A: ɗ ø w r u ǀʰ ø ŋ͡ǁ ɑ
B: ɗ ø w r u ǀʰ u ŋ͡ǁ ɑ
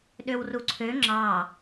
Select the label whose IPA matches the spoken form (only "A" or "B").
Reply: A